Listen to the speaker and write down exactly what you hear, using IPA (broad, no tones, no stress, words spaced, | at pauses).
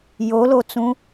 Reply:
jolot͡sũ